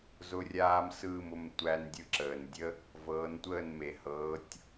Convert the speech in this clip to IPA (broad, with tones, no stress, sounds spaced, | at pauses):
z ʊ˧ rʲ aː˧ m s ɯː˥˩ m ʊ˥˩ m tʷ æ˧ n dʲ ɯ˧ ǁ əː˩ n dʲ ə˥ | v ɤː˩˥ n tʷ əː˥˩ n m e˩ h ɤː˩˥ tʲ